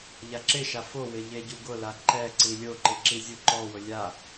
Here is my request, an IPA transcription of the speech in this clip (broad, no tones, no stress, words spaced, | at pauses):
ʎaǁɪʃa fowɪ ʎeɟuɡʊla ǃɛ ǀilʲoǃɪ ǁizʲuǃɔwʊ lʲa